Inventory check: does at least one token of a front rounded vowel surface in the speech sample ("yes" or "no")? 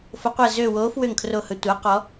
yes